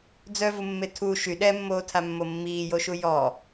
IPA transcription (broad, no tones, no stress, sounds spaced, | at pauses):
d͡z œ v u mː e tʰ u ʃ y ɗ ɛ mː oː tʰ a mː o mː iː j o ʃ u j ɔ